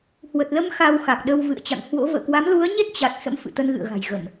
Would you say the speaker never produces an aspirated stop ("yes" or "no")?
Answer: yes